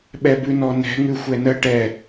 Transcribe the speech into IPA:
ɓ ɛ b ʉ n ɔ n ɛ̤ ŋ ʉ xʷ ɛ n ə ʈ ɛ

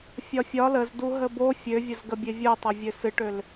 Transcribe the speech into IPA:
fʲ ɒ fʲ ɒ l ə z d u ɦ ə b o fʲ ø vʲ ə z ɡ ə bʲ e vʲ u tˤ ə vʲ ø s ɨ ʈ ø l

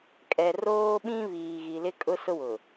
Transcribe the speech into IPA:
kʼ ɛ˨ r oː˦ ɓ ĩ˦ β iː˨ ɣ i˨ l ɪ˦ kʼ ʊ˦ s ʊ˦ w ʊ˨

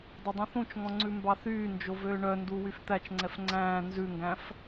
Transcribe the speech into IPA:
dˤ ɵ dˤ ũ θ ũ t͡ʃ ŋ ɔ̃ ŋ͡ǀ ʉ m b ɑ θ yː n d͡ʒ o v øː ɳ œ n d u w y f t̪ æ t͡ʃ ŋ͡ǀ ɛ f ŋ͡ǀ æ̃ː n z ʉ ŋ ɡ æ̃ f

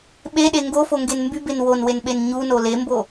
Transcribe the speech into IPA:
ɓ e ɗ e ŋ ɡ o f o ŋ ɡ e n m b y b e n w o n w e n ɓ e n ɲ u n o l e m b o

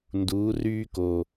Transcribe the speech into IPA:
n d uː˨˦ r yː˦ k o˨˩

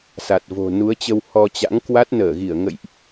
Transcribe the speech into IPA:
s a˨˩ t̚ v o̤˨˩ n u˨˦ ə̯ t͡ɕ ə˧ w h ɔ˧ t͡ɕ a̰˧˥ ŋ k w a˦˥ t̚ n əː˧˩ ɣ i˧˩ ə̯ ŋ ə̰˧˨ j ʔ

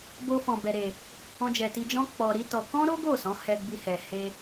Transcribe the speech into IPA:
b o˧ f ɔ̃˨ b ɛ˨ ɾ e˨ | ɔ̃˧ d͡ʒ ɛ˨ t i˧ d͡ʒ ɔ̃˦ k͡p ɔ˧ ɾ i˦ t ɔ˧ k ɔ̃˦ ɾ o˦ ɡ o˦˨ s ɔ̃˨˦ h ɛ˧ ɡ͡b i˧ h ɛ˨ h e˧

